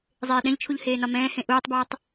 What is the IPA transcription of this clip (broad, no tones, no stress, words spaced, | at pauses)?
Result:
zˤeːɗɛ̃ʎt͡ʃʰuʎ heːnɒmɛ̃ːhẽ ʔuːtˤbʌːtˤ